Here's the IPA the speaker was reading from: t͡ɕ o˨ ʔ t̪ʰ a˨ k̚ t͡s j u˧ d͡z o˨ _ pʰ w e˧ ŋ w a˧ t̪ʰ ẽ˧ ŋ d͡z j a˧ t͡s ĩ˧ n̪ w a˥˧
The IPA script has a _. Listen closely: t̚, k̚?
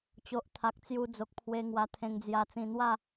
k̚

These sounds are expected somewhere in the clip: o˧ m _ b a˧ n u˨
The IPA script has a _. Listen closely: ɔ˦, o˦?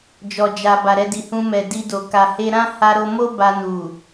o˦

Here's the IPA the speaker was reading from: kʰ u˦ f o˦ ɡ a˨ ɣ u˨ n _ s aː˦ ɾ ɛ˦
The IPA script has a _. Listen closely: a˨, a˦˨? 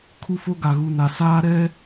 a˨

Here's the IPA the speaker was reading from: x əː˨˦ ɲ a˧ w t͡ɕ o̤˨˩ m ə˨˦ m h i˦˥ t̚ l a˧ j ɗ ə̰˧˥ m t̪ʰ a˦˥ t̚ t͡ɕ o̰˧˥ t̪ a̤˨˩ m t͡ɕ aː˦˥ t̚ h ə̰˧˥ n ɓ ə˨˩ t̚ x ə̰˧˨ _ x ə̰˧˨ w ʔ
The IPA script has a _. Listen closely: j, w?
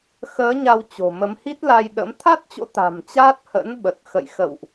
j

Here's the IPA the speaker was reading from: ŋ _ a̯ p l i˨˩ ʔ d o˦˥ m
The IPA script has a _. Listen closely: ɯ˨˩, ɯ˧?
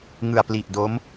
ɯ˨˩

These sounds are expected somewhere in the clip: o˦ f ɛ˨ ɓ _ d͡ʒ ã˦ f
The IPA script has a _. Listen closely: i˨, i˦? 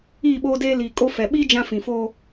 i˦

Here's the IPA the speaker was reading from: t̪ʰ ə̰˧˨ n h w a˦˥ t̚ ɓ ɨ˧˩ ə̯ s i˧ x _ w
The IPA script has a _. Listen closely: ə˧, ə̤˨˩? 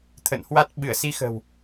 ə̤˨˩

